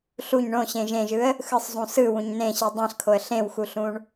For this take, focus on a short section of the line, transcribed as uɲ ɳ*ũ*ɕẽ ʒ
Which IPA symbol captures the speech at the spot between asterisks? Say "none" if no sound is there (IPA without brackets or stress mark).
õ